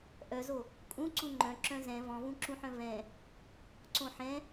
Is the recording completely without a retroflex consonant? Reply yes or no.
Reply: yes